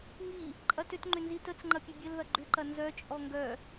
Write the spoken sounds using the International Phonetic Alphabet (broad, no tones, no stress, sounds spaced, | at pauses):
ŋ i | ǃʼ ɐ t ʏ t ŋ͡ǃ ʏ n z i t ə t͡s ŋ͡ǃ ɐ pʲ ɐ bʲ ə l ð ɐ ɡ͡ǃ ʏ ǃ ɐ n z œ t͡ʃʼ ɔ ŋ ɡ œ